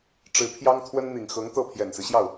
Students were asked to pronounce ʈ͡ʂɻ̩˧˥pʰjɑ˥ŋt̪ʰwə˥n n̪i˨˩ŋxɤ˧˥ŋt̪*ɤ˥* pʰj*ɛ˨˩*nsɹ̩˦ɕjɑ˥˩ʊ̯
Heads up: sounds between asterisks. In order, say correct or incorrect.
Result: incorrect: ɤ˥˩, correct

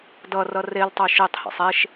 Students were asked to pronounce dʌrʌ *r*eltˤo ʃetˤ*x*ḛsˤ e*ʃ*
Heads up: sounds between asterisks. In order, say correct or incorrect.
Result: correct, incorrect: h, correct

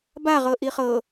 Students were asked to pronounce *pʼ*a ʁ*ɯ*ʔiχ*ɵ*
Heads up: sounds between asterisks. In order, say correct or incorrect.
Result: incorrect: b, incorrect: ɤ, incorrect: ɤ

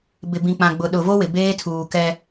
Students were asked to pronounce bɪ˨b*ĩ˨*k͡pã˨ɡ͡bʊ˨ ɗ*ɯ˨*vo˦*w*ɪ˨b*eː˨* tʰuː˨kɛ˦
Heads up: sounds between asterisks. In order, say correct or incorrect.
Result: correct, incorrect: ʊ˨, correct, incorrect: eː˦

